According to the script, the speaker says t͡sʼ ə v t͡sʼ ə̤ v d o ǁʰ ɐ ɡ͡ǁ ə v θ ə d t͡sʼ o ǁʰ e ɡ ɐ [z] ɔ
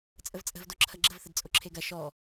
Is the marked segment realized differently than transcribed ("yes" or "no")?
yes